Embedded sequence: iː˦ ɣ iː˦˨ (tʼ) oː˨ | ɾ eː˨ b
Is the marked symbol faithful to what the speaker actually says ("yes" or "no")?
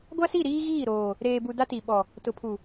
no